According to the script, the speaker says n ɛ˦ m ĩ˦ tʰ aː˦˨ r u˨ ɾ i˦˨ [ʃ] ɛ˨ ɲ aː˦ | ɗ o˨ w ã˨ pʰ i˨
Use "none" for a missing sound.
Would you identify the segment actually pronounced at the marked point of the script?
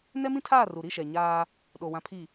ʃ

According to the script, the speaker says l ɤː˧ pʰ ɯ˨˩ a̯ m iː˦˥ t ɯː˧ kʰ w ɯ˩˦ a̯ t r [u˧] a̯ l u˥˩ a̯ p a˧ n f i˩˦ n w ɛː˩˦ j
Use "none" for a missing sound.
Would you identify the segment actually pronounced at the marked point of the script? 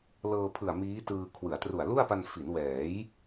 u˨˩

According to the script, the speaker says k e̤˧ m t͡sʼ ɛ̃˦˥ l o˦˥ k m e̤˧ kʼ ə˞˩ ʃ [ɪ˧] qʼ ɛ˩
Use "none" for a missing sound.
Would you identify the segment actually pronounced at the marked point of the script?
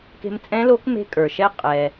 ɛ˧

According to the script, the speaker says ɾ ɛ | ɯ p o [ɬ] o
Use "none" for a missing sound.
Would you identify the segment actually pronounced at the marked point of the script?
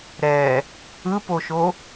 ʃ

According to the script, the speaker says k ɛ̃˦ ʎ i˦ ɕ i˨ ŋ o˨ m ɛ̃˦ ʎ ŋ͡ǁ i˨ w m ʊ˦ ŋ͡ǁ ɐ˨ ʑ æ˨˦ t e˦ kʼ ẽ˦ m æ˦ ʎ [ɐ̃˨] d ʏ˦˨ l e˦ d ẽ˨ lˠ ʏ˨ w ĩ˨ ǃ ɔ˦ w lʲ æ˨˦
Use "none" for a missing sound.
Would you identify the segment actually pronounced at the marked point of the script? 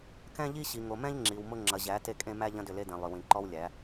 ɐ̃˦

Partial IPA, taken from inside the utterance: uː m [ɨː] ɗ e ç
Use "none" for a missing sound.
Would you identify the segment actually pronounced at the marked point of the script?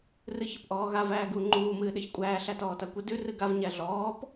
ɨː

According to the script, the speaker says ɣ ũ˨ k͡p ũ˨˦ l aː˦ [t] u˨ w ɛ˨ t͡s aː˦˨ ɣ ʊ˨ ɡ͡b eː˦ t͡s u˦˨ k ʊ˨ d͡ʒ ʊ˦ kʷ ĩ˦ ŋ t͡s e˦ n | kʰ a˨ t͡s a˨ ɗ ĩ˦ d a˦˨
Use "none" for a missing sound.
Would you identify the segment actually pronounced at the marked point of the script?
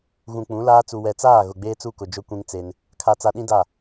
t͡s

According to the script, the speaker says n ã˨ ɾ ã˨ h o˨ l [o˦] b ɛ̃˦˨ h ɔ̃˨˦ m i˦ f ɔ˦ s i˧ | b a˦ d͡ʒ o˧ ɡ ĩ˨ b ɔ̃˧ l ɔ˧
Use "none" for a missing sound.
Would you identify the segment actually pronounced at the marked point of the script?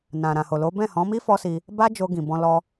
o˨˦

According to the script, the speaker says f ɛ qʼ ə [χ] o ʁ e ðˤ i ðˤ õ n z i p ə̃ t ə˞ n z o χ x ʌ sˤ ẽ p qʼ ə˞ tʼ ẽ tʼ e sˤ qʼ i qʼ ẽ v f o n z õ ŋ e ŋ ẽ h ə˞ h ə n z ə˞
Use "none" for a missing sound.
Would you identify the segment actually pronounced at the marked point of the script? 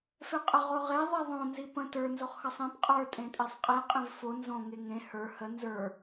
ʁ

